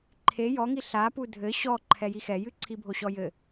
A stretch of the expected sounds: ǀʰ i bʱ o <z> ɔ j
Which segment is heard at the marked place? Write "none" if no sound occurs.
ɕ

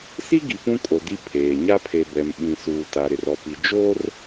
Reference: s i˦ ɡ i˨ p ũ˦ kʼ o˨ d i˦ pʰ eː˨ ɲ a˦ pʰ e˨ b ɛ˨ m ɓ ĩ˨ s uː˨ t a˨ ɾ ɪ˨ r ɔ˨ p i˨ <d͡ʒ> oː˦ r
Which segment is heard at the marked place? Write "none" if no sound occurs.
d͡ʒ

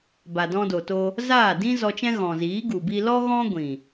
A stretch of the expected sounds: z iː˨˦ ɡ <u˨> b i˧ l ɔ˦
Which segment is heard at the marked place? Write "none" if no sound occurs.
u˨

